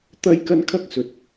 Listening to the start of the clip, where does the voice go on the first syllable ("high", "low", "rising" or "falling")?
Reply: high